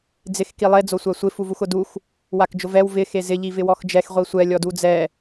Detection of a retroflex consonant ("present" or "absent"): absent